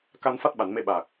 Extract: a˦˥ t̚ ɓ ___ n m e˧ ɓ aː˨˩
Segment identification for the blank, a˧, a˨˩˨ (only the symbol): a˨˩˨